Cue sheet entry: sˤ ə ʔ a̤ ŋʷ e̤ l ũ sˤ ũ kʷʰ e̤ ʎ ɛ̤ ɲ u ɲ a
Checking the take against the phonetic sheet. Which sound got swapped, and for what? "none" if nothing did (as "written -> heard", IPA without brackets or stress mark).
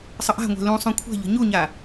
ɛ̤ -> ə̤